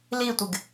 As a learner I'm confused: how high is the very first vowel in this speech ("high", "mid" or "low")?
high